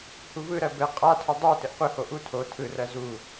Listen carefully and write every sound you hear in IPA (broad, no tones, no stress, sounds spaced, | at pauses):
h u v ɯ ɾ ɜ b ɘ qʼ a tʰ ʊ dˤ u t ɘ ʔ qʷ ɯ h o ʔ u tʰ o tʰ ɯ r ɜ z u